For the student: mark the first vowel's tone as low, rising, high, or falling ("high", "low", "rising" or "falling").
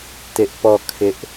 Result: high